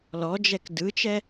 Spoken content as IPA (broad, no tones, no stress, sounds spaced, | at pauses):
l ɔ d͡ʒ ɛ k d ɯ t͡ʃ ɛ